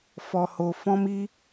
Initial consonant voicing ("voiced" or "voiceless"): voiceless